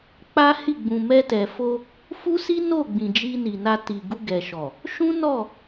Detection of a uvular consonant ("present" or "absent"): absent